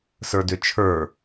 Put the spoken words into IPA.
sə˞dʏt͡ʃʰə˞

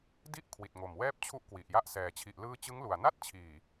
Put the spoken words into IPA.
di˦˥ʔ kʰwi˨˩t̚ŋo˨˩mwɛː˥˩p̚ t͡ɕʰu˥˩ʔkwi˨˩ʔja˥˩ʔsɛː˨˩ t͡ɕʰi˨˩ʔlɯː˧ t͡ɕɯ˦˥ŋlu˨˩a̯ na˥˩t̚t͡ɕʰiː˨˩

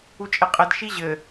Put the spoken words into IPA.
ut͡ʃʼeqʼɘd ʃiʑɘ

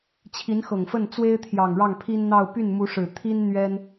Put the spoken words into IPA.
t͡ɕʰi˧˥nxɤ˨˩ŋfə˥˩n t͡swe˥ɪ̯t̪ʰjɑ˨˩ŋ ɻɑ˥˩ŋpʰi˥nn̪ɑ˥˧ʊ̯ py˥˩nmu˧˥ʂɻ̩˨˩ t̪ʰi˥n n̪ɥɛ˥n

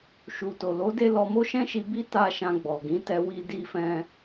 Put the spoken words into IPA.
ʃu˨to˨ lo˨˦de˧ lɔ˧mo˦ʃɛ̃˦ʃi˧ bi˦ta˧ ʃã˧ɡ͡bɔ˨ɡĩ˨˦ tɛ˧wi˧ di˧ fɛ̃˧

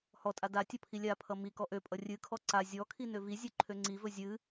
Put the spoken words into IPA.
hɔtʼa datʲʌ pʰilʲapʰʌ mi kɔʔøpʼʌ rʲɨkʰɔ ǀa zʲɔkʰi nøvizʲø ǃʰøŋ͡ǀivɵ zʲɨ

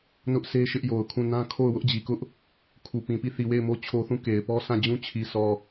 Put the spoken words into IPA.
nʊ˦ʔsʰe˦ ʃɪ˦ʔjo˨ʊ̯kʰũ˦˨ nã˦ kʰo˦˨ʊ̯ wʊ˦ʔd͡ʑi˨kʊ˦ʔ | kʰu˨pĩ˨ pi˦˨θi˨we˦˨ɪ̯mo˦ t͡ɕʰo˦θũ˦˨ ke˨ɪ̯pɔ˦ sʰã˦˨d͡ʑũ˦ t͡ɕʰi˨sʰɔ˨

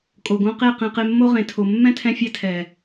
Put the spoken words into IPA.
kʼo˨ɡõ˧qe˦˨ qẽ˧qe˧mːo˦ʁẽ˨ tʰo˨mːɛ̃˦tʰɛ̃˧fʲɛ˧ tʰɛ˨

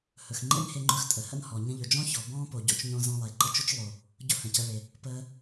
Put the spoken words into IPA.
hɵ˩x ŋ͡ǃḛ˥nhe˧ŋ͡ǃɵ˧x tʼə˩hə̰˥nhɔ˩ ɲə̃˧ʎɵ˩d͡ʒɔ̃˥çɔ˩ bɔ̃ː˥po˩ɟo̰˧t͡ʃɲõ˧ zɔ̃˧lˠe˩ǃə˧t͡ʃʊ˥t͡ʃ lˠo˩ | ɟʊ˥hə̃˩cə˧ɭe˩ | pəː˧

